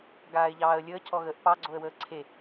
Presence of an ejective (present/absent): absent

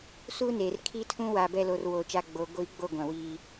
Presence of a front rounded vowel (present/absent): absent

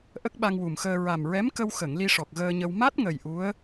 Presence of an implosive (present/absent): present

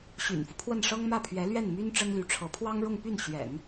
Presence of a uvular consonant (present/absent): absent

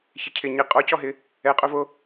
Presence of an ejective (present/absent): present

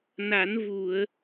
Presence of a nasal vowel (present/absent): absent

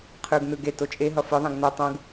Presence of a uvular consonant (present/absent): present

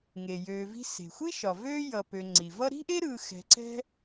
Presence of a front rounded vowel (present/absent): present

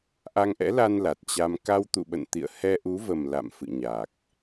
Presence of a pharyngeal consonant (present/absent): absent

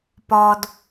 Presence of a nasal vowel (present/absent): absent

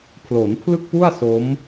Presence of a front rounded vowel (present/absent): absent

